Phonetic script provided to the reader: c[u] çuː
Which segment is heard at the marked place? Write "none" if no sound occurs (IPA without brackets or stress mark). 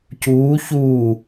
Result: uː